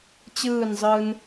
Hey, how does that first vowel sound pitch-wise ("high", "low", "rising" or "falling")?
falling